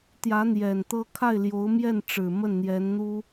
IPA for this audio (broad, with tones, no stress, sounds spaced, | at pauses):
t̪ j ä˧˥ n̪ j ɛ˨˩ n t̪ ɤ˥ kʰ a˥˩ ɪ̯ l j o˧˥ ʊ̯ m j ɛ˥˩ n ʈ͡ʂ ɻ̩˨˩ m ə˥˩ n n̪ j ɛ˧˥ n n̪ u˥